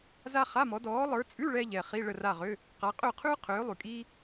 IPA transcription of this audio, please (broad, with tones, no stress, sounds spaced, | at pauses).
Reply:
z a˥ χ a˧˥˧ m ɔ˨˦ d ɔː˨˦ lˠ ə˞˨˦ t͡sʼ ʉ˧˥˧ ɭ ɛ˥ ʎ ɛ˨ χ i˧˥˧ ɭ ə˦˨ r a˦˨ ʁ ø˧˥˧ | q a˨˦ qʼ ø˦˨ qʰ ʉː˥ qʰ øː˨˦ lˠ ʉ˨ kʼ iː˥